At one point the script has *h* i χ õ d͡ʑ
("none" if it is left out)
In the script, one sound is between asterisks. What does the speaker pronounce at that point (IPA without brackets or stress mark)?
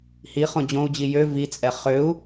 h